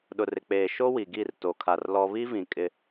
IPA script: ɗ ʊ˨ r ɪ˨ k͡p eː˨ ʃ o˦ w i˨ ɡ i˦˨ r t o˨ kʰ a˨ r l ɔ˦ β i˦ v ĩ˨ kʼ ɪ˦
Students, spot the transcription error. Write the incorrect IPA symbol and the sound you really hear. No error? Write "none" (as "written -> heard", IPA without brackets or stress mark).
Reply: none